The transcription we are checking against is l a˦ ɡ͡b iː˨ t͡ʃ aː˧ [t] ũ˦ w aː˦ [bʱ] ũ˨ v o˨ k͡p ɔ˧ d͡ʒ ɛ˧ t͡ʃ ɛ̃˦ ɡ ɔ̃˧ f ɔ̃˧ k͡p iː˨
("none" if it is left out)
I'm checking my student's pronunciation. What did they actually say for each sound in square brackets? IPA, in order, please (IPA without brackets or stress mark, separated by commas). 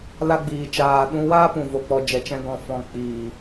ɗ, p